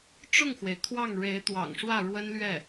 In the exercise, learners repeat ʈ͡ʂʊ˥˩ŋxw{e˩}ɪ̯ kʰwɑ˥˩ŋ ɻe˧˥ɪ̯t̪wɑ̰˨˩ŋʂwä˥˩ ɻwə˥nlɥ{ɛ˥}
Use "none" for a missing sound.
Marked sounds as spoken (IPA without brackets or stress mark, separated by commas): e˩, ɛ˥˩